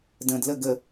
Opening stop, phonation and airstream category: plain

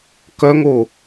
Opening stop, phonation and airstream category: plain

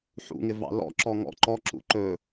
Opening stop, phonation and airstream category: click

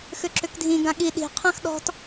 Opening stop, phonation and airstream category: click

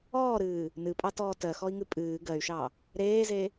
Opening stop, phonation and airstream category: ejective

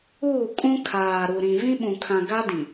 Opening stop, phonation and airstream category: ejective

